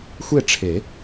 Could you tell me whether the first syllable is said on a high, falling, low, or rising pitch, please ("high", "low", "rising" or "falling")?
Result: falling